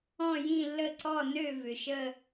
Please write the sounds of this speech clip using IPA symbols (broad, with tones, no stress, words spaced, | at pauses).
ɔ̃˥˧jĩ˥˧lːə˥˧ǀɔ˥˧ nø˥˧ vʏ˨ʃə˥˧